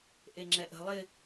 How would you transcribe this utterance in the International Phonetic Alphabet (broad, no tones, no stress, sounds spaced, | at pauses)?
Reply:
ʔ e ŋ͡ǁ ɛ ʔ ə̤ lˠ ɪ